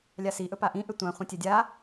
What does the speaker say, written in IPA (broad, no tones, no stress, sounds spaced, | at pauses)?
lʲ a s i ʔ ɵ p a ʔ ĩ ʔ ʏ tʷ ã χʷ ĩ tʲ ɛ dʲ a